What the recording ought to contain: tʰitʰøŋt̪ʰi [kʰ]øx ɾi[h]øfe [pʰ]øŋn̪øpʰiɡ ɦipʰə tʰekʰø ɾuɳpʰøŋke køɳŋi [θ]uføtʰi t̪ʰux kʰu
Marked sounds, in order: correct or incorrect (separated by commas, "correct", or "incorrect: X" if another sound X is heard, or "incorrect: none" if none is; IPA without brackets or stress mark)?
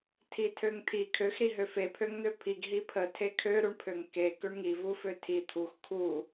correct, incorrect: ɦ, correct, incorrect: v